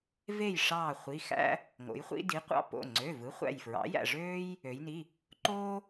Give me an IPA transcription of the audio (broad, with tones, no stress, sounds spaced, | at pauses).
v e˧˩ j ʂ ɑː˧˩ χʷ i˩˧˩ x æ̰˦ | ŋ o̰˩˧ j χʷ ḭ˦ d i˩˥ qʷ ɑ̰˦ p o̰˩˧˩ ŋ͡ǀ ø˩˧˩ v ɯ˩˥ χʷ æ̰˧˩ j f ɹ ɑ̰˩˥ j æ̰˧˩ ʐ øː˦ j | ø˩˧ j n i˩˧˩ | ǃ oː˦